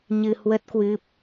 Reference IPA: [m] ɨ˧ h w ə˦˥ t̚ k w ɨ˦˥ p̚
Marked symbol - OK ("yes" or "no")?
no